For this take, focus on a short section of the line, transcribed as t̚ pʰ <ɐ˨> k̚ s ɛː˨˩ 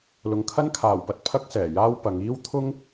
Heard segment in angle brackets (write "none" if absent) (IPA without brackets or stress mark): ɐ˥